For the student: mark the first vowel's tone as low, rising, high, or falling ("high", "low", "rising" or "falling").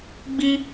high